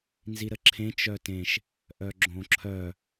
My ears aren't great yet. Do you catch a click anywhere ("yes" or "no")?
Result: yes